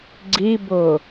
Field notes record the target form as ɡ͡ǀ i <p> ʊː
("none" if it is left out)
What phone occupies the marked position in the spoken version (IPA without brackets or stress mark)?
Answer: b